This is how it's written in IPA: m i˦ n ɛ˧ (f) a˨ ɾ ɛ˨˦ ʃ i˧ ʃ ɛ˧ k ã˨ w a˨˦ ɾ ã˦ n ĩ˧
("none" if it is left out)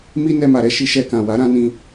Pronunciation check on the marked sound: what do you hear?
m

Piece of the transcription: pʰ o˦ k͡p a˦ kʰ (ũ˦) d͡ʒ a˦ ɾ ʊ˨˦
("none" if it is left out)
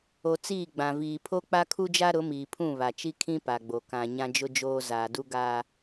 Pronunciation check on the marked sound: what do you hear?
u˦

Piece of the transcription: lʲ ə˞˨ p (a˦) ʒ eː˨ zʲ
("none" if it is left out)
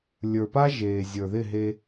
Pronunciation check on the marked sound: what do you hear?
a˦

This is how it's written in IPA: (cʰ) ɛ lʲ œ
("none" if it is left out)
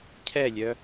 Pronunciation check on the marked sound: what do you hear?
cʰ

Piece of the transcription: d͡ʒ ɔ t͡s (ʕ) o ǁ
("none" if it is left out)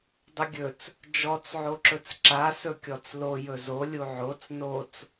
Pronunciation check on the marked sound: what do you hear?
ʕ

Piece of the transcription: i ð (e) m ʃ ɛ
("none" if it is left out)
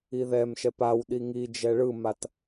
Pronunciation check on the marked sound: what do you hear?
ɛ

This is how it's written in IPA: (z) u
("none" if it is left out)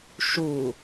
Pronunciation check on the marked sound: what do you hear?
ʃ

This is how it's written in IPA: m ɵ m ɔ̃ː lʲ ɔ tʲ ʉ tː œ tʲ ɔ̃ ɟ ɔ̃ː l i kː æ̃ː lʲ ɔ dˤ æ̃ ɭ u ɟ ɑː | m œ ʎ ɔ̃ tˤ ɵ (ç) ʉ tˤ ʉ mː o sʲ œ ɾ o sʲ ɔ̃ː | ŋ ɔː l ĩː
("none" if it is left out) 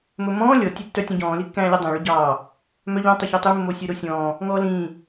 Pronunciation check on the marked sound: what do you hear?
ç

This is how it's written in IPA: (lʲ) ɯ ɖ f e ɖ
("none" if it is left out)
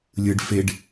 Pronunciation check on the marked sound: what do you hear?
lʲ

